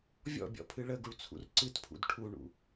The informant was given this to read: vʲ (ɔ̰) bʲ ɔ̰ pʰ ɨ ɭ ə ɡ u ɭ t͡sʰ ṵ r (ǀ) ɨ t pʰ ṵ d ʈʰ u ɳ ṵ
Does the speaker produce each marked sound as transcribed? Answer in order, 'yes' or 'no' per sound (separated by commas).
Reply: yes, yes